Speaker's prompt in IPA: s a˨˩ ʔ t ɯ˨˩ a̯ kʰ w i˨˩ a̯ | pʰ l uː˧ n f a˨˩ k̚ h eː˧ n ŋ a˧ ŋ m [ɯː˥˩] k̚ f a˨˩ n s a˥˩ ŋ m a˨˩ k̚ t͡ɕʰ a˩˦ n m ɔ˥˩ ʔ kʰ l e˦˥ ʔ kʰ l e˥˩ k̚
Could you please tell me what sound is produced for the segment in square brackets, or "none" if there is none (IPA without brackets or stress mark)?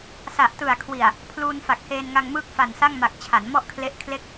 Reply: ɯː˥˩